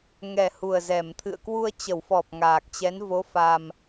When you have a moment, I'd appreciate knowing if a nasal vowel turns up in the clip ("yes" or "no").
no